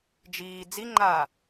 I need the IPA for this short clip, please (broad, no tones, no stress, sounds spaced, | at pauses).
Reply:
d͡ʒ iː d͡z i ŋ͡ǃ aː